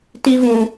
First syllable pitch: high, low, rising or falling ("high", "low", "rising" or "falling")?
high